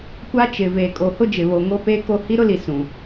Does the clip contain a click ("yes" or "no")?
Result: no